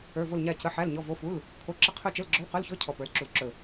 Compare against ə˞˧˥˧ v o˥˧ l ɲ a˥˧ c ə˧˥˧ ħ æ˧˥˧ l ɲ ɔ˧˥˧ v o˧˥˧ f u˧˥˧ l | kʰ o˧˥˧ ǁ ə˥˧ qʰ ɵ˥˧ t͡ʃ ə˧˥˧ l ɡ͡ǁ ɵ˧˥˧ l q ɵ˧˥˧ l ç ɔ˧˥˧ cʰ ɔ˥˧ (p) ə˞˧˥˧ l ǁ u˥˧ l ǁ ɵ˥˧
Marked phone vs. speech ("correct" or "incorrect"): correct